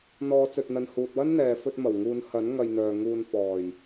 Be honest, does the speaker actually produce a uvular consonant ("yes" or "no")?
no